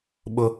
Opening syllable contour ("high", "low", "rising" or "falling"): high